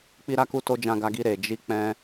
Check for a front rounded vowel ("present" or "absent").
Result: absent